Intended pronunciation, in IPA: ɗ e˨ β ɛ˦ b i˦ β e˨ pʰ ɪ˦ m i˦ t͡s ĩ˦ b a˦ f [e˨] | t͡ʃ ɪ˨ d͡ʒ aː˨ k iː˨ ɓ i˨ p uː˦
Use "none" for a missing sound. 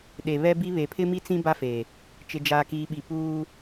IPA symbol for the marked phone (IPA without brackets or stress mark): e˨